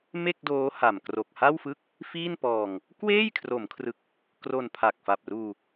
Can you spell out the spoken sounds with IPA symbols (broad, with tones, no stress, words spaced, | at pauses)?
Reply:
me˥˩k̚doː˦˥ ha˨˩mkro˨˩k̚ha˥˩w fɯ˦˥k̚ | fiː˥˩npɔː˧ŋ | kweː˥˩jkʰro˩˦mkʰrɯ˨˩k̚ | kro˧npʰa˨˩k̚fa˨˩p̚ruː˧